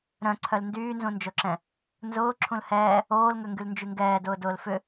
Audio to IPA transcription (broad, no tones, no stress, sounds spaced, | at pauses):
ɾ œ̃ ǀʰ œ l n d yː n z ũ n d͡ʒ o ǁ ɛ̃ | n z ʊː ǁʰ ũ l h ɛː | oː l ŋ ø ŋ ɡ y l n d͡ʒ y ŋ ɡ ɛː d ʊː d ʊː l f ʏ